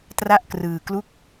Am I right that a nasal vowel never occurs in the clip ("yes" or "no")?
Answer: yes